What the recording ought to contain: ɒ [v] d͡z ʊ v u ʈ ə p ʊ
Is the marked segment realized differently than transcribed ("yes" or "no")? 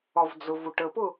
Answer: no